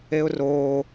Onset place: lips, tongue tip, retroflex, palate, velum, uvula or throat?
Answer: tongue tip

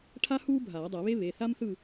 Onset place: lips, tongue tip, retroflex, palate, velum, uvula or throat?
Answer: retroflex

